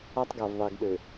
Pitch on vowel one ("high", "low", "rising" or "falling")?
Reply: high